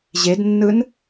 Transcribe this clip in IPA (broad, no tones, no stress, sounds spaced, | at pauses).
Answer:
ʑ e d nː ɯ n